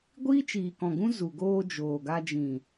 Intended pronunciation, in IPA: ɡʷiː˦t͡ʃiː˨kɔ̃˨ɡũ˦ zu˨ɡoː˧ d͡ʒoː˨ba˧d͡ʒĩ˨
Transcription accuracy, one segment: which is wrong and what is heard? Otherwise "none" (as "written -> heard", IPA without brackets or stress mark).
b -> ɡ